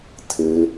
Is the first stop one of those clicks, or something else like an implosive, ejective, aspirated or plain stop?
aspirated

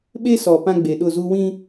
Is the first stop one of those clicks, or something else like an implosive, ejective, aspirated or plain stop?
implosive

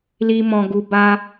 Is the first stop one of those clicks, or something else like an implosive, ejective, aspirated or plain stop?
plain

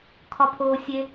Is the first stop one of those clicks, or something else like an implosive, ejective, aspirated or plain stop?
aspirated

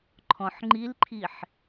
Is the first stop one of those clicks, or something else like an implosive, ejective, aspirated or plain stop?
click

